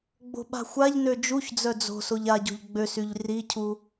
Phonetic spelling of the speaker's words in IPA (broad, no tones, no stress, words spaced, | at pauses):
ɡ͡bo̤ɓa̤xʷaʎ nød͡ʒuçd͡zœ d͡zo̤ soʎaɟo̤ʎ ɡ͡bøsyʎ ricʰu